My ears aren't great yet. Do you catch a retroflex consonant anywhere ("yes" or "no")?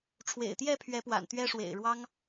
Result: yes